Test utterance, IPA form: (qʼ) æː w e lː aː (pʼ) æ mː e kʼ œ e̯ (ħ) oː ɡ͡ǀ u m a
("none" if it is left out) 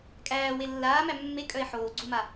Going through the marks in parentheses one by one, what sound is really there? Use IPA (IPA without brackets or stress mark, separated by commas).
kʼ, m, ħ